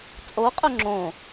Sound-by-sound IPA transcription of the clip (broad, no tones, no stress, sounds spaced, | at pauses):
t͡sʼ o qʼ ɵ ŋ͡ǁ õ